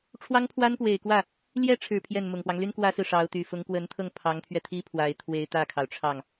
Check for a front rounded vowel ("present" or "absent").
present